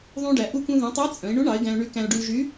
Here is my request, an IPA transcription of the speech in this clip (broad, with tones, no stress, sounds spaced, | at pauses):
ðˤ ũ˧ ɖ æ˩˧ ʔ u˧ k ũ˧ ð ũ˩˧ tˤ æ˧˥ t͡sʼ œ̃˩˧ ɪ̯ ɳ u˧˥ ɳ ɑ˩˧ ɪ̯ ɡ æ̃˧ ʊ̯ ɳ y˧˥ k æ̃˧ ʊ̯ ɖ y˧ l ʒ y˧˥